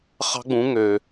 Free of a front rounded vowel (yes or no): no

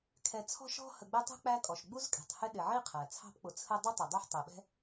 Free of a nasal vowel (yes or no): yes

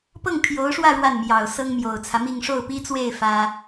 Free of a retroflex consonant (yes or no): no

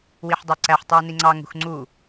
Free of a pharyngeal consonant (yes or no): no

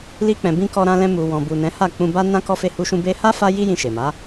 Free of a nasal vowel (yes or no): no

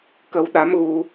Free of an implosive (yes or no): no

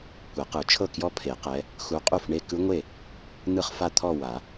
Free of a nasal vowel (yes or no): yes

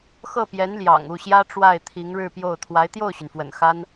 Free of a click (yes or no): yes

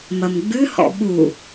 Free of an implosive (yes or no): no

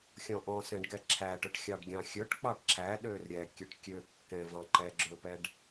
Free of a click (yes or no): no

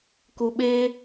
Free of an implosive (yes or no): no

